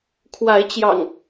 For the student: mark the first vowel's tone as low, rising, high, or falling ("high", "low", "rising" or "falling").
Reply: rising